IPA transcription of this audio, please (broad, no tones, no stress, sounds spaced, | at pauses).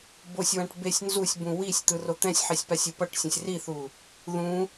b o sʲ w ã ʈ b e sʲ n z u sʲ b ũ w i sʲ t̪ ɯ r o t̪ ɛ̃ sʲ ħ i sʲ p a sʲ u p ʌ ʈ sʲ ɛ̃ sʲ r i θ u | ð ũ